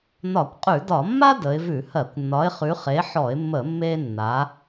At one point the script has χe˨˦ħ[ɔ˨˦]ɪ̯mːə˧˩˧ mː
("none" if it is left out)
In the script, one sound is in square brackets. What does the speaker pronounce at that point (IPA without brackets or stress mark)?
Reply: ɔ˧˩˧